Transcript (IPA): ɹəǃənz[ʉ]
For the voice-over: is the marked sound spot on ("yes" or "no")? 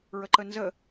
no